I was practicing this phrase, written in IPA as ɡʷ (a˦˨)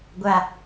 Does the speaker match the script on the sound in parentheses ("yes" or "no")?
no